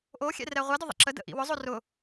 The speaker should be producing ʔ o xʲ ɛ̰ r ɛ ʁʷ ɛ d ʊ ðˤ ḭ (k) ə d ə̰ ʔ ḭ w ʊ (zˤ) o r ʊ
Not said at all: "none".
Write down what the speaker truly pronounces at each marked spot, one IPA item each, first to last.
ǁ, zˤ

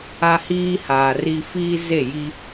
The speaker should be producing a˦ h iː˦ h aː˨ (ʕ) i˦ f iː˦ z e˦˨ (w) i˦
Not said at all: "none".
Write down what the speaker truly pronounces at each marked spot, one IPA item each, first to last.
r, j

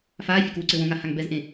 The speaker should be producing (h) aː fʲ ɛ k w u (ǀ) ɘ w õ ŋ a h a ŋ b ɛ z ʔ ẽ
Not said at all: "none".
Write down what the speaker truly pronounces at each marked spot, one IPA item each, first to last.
f, ǀ

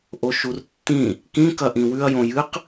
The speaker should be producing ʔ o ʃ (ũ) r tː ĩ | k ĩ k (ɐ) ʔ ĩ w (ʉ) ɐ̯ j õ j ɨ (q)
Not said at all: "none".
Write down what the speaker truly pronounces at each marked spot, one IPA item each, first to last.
u, ɐ, ʉ, q

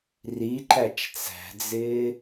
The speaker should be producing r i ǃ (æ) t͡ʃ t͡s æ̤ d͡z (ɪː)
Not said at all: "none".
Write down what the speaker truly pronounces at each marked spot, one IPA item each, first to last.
æ, ɪː

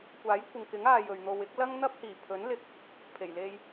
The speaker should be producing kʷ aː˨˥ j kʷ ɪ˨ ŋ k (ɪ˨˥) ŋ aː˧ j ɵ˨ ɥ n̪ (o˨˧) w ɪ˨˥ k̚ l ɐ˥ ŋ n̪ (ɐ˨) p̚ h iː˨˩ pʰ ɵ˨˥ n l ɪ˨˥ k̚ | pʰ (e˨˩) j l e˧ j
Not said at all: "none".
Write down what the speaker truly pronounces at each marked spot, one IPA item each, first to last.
ɪ˨˥, o˨, ɐ˥, e˨˩

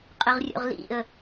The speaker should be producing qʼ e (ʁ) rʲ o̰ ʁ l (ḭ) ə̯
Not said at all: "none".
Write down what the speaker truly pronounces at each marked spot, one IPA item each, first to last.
ʁ, ḭ

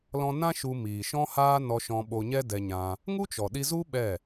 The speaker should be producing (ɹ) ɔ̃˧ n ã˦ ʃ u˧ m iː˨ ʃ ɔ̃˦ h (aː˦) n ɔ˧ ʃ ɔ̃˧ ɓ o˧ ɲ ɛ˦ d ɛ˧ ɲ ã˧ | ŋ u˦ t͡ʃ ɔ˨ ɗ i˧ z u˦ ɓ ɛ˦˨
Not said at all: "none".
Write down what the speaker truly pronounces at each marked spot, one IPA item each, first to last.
l, aː˦

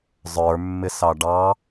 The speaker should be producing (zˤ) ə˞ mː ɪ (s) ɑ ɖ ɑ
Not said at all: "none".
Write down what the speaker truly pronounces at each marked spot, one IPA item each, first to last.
zˤ, s

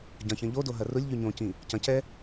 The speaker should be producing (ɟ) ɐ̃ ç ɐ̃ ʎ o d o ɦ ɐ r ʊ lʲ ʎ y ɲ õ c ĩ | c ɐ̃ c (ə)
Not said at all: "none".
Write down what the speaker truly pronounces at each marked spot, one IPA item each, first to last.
ɟ, ɛ

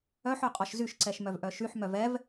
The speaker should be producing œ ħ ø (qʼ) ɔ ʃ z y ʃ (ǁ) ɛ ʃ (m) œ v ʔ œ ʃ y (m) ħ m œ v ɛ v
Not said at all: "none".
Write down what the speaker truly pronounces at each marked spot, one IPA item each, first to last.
qʼ, ǀ, m, none

